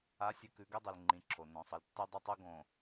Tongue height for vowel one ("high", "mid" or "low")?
low